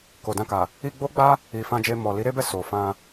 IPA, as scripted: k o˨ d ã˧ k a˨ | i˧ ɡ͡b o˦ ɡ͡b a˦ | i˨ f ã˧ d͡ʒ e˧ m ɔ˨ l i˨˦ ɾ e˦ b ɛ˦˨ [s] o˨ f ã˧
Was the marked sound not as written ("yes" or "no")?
no